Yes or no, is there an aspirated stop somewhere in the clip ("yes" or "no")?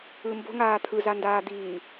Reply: yes